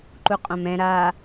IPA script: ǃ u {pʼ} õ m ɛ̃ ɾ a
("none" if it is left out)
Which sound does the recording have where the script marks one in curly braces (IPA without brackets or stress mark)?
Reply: qʼ